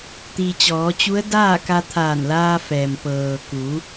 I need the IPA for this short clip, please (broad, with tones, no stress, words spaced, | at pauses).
t̪iː˩t͡ɕɔː˩˧t͡ɕu˧˥ə̯ daː˥˨ka˧ t̪ʰaː˧˩nlaː˧fɛː˩m pɤː˩ ku˩˧